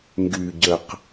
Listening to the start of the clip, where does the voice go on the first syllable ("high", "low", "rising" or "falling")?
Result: low